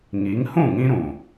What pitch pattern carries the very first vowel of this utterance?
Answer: rising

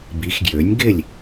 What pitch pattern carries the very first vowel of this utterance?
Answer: rising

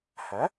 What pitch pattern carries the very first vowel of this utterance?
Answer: rising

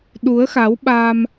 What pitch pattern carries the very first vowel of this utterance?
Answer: rising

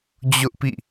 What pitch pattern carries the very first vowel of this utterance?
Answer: high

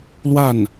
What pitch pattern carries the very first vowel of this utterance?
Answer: falling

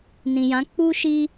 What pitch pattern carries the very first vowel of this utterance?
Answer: low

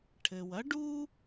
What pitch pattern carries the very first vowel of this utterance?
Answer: low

